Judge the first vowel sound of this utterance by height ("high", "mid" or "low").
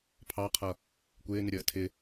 low